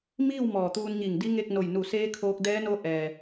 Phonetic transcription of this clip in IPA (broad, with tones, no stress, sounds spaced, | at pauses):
m iː˥˨ w m ɔː˧˩ t̪ uː˧ n ɲ i˧˩ ŋ d i˧˥ ŋ e˥˨ k̚ n o˧˩ j n u˧˩ s eː˧˥ kʰ oː˧ k̚ d ɛː˧˥ n o˧˥ ʔ ɛː˩